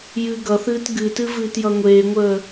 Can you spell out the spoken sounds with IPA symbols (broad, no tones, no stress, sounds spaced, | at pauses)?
j ɨː ɡ ʌ θ ɨː t ɡ ɨ t ɨ v ɨː t j ʌ ŋʷ eː ŋʷ əː